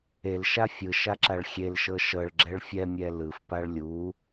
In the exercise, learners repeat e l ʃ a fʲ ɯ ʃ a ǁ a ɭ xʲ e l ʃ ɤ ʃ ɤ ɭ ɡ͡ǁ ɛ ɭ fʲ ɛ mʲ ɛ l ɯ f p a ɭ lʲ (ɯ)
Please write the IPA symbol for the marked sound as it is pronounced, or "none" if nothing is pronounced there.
u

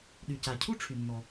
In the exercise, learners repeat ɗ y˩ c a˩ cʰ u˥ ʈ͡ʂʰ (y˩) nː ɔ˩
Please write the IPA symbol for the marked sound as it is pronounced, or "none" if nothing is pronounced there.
y˩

